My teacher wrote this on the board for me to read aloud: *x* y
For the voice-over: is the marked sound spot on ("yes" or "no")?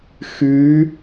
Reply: yes